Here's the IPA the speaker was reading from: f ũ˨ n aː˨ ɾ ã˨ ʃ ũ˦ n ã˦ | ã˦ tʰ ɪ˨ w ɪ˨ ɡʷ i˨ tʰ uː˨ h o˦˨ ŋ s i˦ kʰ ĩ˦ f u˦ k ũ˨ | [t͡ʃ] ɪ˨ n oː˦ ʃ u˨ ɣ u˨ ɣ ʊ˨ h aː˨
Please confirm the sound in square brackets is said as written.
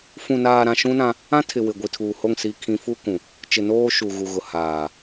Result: yes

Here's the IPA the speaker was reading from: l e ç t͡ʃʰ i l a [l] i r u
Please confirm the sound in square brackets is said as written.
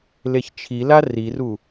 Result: no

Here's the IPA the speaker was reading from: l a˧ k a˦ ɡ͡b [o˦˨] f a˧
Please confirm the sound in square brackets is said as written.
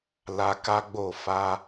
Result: yes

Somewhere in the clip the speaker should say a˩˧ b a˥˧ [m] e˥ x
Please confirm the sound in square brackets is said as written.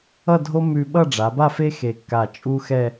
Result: no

